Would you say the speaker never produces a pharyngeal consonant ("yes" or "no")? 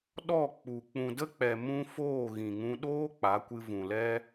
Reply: yes